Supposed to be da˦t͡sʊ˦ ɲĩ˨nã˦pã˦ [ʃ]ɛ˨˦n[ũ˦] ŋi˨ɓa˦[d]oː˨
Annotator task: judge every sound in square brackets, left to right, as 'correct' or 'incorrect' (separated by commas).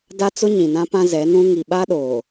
incorrect, correct, incorrect